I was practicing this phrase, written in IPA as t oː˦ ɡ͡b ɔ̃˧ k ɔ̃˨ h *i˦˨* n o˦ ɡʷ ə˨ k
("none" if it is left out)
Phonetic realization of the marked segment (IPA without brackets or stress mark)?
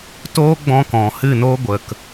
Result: ɨ˦˨